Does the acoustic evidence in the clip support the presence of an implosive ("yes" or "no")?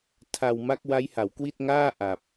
no